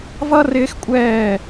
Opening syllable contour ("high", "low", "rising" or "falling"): high